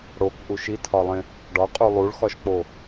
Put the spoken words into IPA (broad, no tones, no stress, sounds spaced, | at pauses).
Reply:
ɽ o k ʔ u ʃ i tʰ ɒ lˠ ẽ | ɖ ɒ qʼ u lˠ u ɭ x ɒ ʃ k͡p o